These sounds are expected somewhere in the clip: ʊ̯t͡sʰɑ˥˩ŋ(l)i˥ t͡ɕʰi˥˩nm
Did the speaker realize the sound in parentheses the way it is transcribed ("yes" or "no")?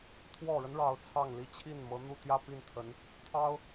yes